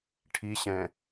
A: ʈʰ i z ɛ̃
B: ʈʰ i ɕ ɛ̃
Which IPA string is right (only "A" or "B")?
B